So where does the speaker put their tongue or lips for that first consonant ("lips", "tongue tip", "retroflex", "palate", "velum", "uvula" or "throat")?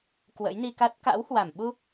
velum